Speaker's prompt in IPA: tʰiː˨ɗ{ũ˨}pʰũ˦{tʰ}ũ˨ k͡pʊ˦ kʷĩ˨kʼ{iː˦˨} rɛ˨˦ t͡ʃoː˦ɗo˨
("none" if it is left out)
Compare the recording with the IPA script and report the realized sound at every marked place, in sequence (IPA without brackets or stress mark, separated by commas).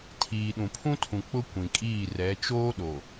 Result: ũ˨, tʰ, iː˦˨